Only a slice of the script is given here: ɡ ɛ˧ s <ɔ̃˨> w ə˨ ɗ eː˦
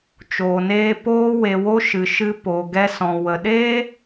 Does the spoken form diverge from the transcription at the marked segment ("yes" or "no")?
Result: no